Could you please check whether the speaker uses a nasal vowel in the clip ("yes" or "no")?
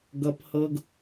no